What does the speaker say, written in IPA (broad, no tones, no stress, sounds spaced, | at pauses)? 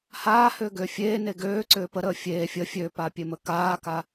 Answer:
h aː h ʏː ɡ ʏː fʲ eː n e ɡ øː ǀ ʏː p ə ɾ əː fʲ eː fʲ ə fʲ ø p aː pʲ e m ə k aː k a